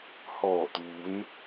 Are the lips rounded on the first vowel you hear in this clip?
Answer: yes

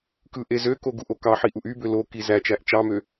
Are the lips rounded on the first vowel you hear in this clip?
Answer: no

